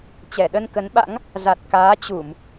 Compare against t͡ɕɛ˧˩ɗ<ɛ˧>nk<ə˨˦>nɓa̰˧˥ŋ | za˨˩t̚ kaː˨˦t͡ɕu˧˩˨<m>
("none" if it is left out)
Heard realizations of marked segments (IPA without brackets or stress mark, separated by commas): ə˧, ə˨˦, m